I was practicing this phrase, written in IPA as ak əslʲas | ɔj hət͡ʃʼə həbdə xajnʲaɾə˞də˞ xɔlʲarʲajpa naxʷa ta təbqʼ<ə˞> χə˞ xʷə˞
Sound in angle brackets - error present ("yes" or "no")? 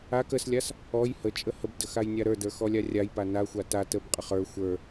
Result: yes